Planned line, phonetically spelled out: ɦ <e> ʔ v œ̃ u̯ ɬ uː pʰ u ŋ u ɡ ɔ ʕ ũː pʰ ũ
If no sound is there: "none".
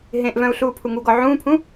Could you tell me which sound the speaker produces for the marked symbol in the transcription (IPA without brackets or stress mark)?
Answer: ẽ